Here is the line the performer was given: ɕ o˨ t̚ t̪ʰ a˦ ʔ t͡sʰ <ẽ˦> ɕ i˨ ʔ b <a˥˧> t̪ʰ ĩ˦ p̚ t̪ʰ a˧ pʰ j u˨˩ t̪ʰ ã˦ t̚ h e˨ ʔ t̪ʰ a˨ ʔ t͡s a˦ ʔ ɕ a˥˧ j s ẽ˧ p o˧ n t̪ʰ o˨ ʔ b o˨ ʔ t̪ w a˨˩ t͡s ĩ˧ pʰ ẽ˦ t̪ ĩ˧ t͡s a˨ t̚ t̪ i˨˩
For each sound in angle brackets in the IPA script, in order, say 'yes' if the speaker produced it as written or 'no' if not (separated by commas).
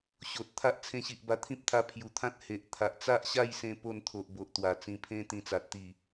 no, no